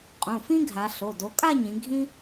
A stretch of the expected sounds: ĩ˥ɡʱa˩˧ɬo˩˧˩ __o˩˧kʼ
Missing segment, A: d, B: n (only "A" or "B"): A